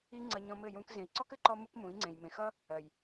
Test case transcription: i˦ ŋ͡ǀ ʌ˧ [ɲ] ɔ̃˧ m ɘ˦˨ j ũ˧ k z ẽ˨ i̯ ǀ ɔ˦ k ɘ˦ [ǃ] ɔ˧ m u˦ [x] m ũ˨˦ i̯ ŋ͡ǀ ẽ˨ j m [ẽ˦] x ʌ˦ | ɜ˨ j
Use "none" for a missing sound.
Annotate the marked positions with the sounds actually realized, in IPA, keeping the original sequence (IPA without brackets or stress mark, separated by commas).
ɲ, ǃ, k, ẽ˨